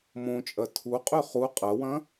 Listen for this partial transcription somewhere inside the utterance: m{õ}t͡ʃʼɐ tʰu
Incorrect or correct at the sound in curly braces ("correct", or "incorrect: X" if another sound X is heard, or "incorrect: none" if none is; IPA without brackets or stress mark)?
correct